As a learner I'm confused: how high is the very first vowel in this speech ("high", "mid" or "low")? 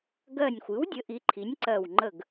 mid